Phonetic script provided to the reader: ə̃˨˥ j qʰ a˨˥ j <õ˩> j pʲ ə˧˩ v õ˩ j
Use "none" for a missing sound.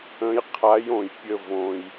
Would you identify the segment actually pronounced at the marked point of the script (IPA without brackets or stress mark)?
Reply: õ˩